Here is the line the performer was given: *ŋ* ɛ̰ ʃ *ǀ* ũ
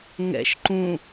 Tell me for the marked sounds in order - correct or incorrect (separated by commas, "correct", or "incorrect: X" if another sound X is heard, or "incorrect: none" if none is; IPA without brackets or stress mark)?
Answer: correct, incorrect: ǃ